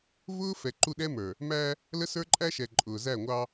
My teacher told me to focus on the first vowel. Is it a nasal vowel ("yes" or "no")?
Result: no